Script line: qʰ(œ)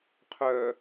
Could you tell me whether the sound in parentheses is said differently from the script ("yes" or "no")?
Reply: no